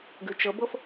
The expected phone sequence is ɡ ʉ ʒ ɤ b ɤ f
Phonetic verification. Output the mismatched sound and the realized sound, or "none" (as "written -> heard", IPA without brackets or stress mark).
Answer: ʒ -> t͡ʃ